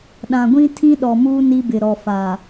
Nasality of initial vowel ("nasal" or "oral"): nasal